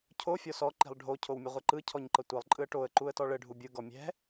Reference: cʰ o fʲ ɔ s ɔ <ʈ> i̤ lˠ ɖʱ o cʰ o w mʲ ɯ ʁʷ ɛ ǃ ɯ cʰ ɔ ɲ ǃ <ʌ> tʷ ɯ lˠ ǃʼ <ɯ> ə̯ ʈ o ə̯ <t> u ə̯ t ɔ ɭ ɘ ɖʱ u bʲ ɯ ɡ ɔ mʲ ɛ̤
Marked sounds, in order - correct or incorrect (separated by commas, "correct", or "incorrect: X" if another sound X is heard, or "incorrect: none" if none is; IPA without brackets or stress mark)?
incorrect: ǃ, correct, correct, incorrect: ǃ